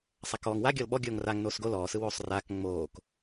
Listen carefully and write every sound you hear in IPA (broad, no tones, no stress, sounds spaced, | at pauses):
sˤ a k ɔː ŋ w a ɡʲ ɔ l ɓ ɔ ɡʲ oː ŋ r a ŋ n oː s ɡ o l ɔː s ɯ w oː sˤ r aː k ŋ͡m oː k